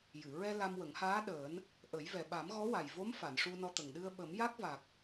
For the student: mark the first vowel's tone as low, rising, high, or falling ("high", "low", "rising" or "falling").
low